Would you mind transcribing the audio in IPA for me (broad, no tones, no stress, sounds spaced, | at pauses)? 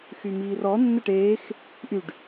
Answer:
x y m iː r ɔ nː ə ʈ eː x | ʔ y ɖ